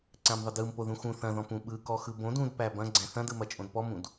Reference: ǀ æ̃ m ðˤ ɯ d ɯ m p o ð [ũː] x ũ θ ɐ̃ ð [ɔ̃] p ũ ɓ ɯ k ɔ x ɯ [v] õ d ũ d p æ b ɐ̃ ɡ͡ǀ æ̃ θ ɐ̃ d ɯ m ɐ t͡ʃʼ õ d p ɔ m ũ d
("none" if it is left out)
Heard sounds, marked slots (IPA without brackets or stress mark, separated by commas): ũ, ɔ̃, b